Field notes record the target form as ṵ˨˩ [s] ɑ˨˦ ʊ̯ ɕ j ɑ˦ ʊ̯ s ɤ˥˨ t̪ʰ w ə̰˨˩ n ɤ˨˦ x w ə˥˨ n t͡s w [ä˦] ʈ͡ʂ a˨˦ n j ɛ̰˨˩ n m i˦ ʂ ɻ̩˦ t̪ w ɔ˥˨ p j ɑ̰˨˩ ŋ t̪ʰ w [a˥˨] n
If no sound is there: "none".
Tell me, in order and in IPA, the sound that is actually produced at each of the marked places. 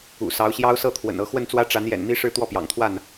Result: s, ä˦, a˥˨

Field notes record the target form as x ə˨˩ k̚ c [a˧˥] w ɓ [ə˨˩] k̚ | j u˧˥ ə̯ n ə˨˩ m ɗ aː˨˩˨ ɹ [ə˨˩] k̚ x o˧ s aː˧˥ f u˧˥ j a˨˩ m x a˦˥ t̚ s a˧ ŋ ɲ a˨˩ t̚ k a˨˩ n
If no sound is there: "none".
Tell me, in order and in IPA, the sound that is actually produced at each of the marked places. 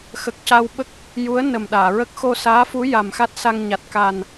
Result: a˧, ə˦˥, ə˦˥

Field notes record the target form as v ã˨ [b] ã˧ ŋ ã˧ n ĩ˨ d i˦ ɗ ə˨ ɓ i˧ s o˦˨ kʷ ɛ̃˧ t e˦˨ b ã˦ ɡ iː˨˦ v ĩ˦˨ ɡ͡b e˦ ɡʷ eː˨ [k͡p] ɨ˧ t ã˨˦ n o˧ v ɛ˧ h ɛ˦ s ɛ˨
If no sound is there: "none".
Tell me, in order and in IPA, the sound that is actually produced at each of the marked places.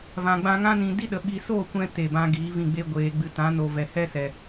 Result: ɡ͡b, ɡ͡b

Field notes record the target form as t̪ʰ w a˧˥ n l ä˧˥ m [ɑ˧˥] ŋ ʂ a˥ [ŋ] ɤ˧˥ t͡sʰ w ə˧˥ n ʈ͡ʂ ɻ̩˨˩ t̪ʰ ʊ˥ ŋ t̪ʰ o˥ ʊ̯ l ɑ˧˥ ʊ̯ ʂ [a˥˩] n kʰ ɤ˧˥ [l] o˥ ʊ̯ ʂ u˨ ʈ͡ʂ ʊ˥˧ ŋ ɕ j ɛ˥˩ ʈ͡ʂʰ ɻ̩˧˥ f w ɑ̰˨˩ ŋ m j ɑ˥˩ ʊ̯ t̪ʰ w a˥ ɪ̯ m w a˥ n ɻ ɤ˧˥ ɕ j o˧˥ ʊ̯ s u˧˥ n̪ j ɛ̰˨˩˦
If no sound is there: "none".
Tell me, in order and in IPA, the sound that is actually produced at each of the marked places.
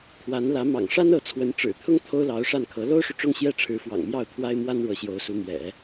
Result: ɑ̰˨˩, n, a˥˩, l

